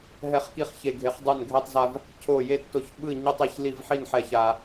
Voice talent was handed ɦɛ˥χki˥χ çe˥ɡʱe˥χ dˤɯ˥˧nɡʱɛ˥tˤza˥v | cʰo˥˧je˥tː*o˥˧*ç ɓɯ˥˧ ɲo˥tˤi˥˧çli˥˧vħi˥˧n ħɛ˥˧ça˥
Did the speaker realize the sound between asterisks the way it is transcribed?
yes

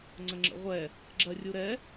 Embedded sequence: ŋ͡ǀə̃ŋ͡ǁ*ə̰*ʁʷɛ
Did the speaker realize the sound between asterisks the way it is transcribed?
yes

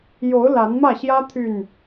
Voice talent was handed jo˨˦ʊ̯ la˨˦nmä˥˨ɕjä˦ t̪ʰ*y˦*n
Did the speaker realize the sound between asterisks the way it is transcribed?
no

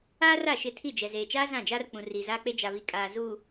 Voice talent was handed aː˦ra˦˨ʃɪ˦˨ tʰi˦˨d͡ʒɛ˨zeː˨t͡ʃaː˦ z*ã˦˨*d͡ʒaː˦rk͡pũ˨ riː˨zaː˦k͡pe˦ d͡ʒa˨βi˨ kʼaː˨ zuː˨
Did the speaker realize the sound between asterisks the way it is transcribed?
yes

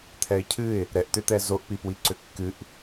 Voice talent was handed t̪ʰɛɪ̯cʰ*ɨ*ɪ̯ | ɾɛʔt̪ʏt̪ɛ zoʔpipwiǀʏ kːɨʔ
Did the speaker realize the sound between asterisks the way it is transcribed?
yes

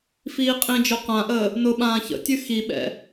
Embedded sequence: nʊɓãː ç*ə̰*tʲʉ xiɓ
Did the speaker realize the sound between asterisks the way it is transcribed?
yes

